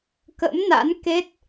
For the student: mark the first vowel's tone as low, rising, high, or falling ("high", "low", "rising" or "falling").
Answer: rising